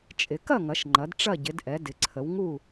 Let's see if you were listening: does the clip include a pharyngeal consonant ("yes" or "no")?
no